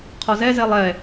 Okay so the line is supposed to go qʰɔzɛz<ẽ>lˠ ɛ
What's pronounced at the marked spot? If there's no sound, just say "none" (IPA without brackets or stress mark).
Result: e